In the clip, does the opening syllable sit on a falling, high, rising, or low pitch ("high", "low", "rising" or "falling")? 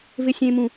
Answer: high